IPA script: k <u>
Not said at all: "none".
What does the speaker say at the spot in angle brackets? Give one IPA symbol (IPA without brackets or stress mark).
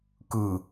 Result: ɯ